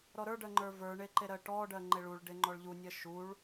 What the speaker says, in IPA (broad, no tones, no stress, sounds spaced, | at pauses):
ɾ ɔ ɾ ə˞ ɖ ɜ ŋ͡ǃ ə˞ v ə˞ ɳ e ǃ e ɾ ɜ ʈ ɔ ɖ ɜ ŋ͡ǃ e ɭ u ɭ ɖ e ŋ͡ǃ ɔ ɭ ʎ u nʲ ɜ ʃ u ɭ